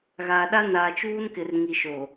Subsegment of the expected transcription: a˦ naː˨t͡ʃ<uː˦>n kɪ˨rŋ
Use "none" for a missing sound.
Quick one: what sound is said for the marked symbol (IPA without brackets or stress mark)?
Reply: uː˦